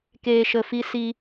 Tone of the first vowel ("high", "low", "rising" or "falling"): low